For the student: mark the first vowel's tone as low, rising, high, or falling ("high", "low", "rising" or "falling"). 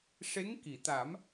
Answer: rising